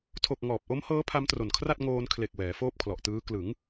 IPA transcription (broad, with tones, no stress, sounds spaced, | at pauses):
tʰ o˨˩ k̚ ŋ ɔː˨˩ p̚ ʔ o˦˥ m h ɤː˦˥ pʰ a˦˥ m t r o˨˩ n kʰ r a˥˩ t̚ ŋ oː˧ n kʰ l e˨˩ k̚ w ɛː˩˦ f oː˥˩ p̚ kʰ l ɔ˨˩ ʔ t ɯː˦˥ k l ɯ˩˦ ŋ